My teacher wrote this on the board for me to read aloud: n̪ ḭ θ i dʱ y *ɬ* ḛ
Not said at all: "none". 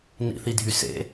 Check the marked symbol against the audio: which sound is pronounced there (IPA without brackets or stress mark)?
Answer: s